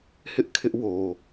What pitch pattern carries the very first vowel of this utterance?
high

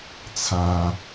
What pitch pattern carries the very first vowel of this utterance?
low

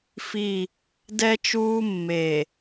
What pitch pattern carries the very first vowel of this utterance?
falling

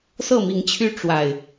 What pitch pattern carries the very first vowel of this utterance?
falling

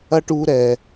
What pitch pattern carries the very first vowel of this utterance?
high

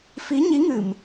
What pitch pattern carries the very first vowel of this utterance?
rising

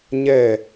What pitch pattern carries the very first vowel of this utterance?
falling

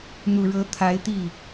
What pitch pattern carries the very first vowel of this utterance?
low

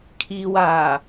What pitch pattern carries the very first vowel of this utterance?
low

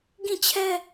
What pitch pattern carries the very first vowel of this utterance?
falling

